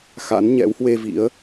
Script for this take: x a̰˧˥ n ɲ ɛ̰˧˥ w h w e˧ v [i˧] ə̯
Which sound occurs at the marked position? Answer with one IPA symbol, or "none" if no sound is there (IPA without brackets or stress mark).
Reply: ḭ˧˥